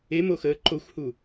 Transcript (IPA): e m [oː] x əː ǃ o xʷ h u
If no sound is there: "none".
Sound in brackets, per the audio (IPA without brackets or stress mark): o